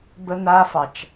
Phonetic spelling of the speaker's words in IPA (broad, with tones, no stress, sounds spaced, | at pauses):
b ə˧ n̪ a˧ f ɑ˨ t͡ʃ